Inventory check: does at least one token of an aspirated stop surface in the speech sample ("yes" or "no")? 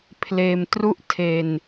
yes